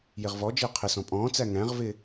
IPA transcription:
jɪʁvɔd͡ʒɪː qʰɪsɔ̃ pʼɔ̃ːt͡sæ ŋæ̃ʁvɪ

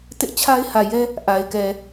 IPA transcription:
tɪ˦ʔt͡ɕʰa˦ɪ̯hä˨ jɛ˦ | ʔa˨ɪ̯ kɛ˨

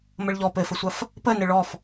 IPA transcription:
məɭʎɔ pɘfəsʷɐf | pənɘ ɭɔf

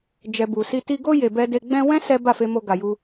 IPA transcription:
d͡ʒɛ˨ bu˨si˧ ti˧ɡo˦ je˧bɛ˦ de˧ɡ͡bɛ̃˦ wɛ̃˦ sɛ˦ ba˦˨fe˧mo˧ ɡa˧ju˦

